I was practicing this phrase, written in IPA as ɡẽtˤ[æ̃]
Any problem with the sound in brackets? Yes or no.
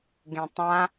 yes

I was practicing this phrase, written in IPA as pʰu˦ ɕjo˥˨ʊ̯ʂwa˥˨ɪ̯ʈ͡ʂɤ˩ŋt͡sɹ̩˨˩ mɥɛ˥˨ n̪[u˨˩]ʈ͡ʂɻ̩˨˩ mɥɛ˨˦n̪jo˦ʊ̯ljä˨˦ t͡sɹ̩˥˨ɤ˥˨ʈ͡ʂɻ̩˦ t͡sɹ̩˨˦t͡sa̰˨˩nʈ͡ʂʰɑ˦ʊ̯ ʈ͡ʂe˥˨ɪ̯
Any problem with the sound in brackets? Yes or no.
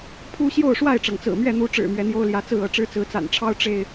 yes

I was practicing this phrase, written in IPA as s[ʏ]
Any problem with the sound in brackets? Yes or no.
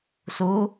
yes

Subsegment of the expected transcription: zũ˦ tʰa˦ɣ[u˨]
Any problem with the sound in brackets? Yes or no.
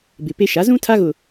yes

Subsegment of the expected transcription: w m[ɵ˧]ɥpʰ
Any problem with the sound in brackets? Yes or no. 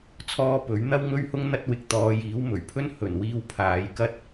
yes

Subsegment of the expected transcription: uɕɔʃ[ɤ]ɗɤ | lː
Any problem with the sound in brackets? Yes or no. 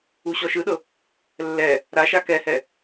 yes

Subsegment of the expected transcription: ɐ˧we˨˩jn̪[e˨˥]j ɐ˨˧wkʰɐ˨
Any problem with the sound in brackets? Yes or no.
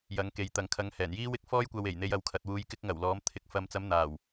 yes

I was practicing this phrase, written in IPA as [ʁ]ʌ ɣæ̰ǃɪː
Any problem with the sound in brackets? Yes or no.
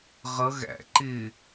no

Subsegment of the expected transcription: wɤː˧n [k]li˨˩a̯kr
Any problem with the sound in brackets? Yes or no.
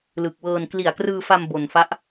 no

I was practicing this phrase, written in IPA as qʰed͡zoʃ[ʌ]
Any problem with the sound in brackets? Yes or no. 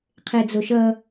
no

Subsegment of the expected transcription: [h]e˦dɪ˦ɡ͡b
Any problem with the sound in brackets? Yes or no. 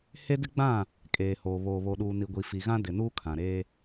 no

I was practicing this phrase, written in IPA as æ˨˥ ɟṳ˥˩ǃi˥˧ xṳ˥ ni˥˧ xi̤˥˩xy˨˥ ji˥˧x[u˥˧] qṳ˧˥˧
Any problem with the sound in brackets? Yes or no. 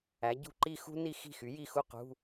no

